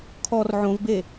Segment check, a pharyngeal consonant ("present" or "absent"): present